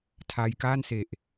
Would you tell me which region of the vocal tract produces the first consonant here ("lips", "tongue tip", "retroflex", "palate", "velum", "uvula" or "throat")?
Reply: tongue tip